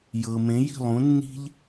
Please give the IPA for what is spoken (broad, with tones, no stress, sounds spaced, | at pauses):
j ɤ˩ m ẽ˩˥ j i̤˥˩ lˠ ũ˩˥ nː i̤˥ ʎ